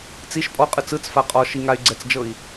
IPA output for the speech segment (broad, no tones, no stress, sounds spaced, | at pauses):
t͡s i ʃ pʼ ɔ qʼ ɯ t͡s ɯ t͡s f a qʼ ɔ ʃ i ŋ a y̯ ɡ͡ǀ ɛ t͡s d͡ʒ ɤ i̯